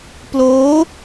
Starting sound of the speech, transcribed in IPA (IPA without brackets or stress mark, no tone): p